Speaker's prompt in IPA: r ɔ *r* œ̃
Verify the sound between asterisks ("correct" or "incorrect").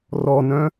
incorrect